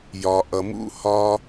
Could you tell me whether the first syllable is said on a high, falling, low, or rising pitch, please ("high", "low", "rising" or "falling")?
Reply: low